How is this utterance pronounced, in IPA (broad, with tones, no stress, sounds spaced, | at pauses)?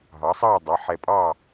ɦ ɑ˩˥ sˤ ɑː˥˨ dˤ ɜ˩˧˩ ħ ɛ˧˩ pʼ ɑː˥˨